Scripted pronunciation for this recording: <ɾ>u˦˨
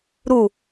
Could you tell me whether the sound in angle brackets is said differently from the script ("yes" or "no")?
no